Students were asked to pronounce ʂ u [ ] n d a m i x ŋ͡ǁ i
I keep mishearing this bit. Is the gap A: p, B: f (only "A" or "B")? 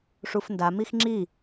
B